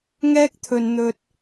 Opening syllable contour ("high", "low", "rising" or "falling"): high